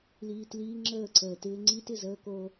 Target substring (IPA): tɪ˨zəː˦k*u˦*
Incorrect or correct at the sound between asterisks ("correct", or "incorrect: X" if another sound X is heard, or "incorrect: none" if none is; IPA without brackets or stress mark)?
incorrect: o˦